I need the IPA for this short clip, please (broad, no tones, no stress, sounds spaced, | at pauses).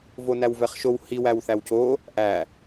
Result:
v o n æ w v ɛ χ ʃ o w h i w æ w θ æ w c o | ʔ æ